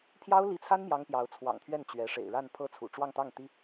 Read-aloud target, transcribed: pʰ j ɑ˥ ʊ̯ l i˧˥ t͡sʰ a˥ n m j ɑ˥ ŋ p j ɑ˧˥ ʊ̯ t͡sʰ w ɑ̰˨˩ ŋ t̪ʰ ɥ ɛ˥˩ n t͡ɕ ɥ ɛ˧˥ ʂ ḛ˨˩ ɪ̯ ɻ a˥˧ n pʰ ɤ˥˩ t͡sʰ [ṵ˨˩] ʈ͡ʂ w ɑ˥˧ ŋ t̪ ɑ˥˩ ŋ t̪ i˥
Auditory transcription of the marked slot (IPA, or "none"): ṵ˨˩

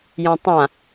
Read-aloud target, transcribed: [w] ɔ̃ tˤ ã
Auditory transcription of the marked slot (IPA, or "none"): j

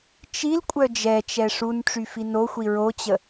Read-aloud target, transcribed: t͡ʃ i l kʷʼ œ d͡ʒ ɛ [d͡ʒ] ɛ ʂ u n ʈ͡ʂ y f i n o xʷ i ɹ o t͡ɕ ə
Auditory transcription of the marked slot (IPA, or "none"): t͡ʃ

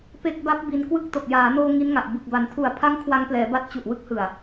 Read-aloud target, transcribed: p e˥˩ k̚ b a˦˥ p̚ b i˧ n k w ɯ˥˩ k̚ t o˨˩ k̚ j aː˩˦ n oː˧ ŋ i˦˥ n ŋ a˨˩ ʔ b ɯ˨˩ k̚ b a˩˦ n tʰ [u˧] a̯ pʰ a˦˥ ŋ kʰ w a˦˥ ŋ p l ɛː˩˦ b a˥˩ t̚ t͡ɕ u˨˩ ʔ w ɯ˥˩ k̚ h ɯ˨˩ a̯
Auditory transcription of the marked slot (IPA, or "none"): u˨˩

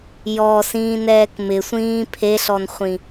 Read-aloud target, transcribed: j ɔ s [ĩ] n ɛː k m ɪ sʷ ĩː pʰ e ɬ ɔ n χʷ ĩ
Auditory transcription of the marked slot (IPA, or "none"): ĩː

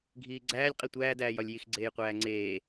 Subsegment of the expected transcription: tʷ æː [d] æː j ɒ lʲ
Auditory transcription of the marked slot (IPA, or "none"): d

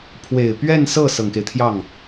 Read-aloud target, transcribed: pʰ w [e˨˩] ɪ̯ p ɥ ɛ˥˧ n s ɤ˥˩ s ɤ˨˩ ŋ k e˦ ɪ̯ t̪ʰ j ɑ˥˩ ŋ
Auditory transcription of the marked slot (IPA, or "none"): e˨˩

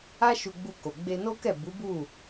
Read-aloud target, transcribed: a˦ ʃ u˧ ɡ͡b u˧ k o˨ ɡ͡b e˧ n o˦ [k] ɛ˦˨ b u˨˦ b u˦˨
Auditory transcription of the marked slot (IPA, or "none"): k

